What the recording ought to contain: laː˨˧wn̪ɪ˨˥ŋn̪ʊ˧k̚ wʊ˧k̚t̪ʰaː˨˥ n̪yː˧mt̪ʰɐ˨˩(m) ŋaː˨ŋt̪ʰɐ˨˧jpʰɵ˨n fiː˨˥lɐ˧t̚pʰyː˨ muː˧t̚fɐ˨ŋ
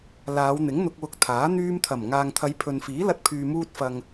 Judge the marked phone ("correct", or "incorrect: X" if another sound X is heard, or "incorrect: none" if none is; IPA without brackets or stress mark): correct